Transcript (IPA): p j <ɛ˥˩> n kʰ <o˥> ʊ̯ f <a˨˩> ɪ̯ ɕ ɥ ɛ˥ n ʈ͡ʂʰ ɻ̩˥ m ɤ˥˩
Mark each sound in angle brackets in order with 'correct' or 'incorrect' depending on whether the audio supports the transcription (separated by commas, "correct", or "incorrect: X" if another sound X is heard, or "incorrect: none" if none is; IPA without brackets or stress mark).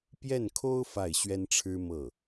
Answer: correct, correct, incorrect: a˥˩